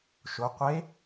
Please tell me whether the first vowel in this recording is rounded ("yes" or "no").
yes